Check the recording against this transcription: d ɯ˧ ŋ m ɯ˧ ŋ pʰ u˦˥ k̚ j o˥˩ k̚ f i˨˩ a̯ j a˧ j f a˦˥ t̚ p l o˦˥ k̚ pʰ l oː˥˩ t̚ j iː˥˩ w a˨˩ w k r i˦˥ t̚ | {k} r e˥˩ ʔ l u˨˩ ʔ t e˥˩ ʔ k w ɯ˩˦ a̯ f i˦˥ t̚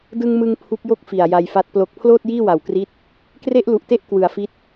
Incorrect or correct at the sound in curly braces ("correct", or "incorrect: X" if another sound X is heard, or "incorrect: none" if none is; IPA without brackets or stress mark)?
correct